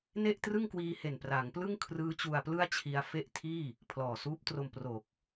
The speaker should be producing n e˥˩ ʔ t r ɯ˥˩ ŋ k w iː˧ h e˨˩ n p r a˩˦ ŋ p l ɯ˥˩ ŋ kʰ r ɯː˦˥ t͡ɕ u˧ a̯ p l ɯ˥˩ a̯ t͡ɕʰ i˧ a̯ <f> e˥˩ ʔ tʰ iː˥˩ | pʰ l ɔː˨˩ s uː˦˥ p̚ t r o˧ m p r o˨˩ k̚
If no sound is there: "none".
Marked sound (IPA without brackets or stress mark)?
f